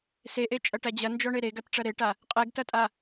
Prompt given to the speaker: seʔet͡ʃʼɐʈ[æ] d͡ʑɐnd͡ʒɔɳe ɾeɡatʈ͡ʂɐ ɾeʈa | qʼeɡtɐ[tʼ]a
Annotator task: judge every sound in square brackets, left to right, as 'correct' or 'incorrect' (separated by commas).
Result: correct, correct